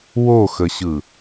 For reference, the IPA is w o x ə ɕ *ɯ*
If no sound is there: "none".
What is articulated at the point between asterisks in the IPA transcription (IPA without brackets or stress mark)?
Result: ɯ